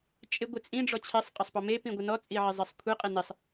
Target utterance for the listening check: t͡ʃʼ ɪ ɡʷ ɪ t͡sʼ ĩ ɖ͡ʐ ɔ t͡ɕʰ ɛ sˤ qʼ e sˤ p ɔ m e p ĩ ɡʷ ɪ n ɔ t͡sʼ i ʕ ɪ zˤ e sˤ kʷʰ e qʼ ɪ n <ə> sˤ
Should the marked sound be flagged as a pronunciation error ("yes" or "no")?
yes